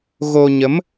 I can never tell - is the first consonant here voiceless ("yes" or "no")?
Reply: no